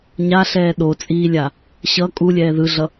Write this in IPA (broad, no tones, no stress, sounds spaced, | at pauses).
ɲ a ɬ ɛː ɗ o t͡sʼ iː lʲ a | ɕ ʌ kʼ u lʲ ɛː ð ɯ ɮ ʌ